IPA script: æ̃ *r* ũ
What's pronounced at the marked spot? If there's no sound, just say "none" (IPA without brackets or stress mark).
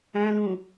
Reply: l